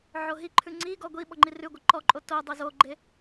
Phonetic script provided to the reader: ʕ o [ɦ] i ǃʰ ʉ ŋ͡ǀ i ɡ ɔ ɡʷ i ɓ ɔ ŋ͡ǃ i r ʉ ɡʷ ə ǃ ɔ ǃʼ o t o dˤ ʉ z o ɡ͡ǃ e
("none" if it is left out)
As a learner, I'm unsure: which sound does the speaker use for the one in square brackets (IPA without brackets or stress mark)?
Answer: ɦ